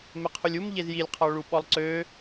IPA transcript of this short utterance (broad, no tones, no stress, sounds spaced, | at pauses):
m e qʰ u lʲ u m ʎ e z j i lʲ qʰ ɔ ɭ u ɓ ɔ lˠ ǀ ø